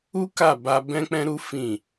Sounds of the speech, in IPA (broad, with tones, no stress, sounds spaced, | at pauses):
u˦ k a˦˨ b a˧ b ɛ̃˦ k͡p ɛ̃˦ ɾ u˦ f ĩ˦˨